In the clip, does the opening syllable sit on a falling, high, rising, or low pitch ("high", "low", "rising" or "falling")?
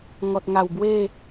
low